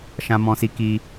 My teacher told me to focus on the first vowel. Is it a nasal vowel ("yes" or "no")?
yes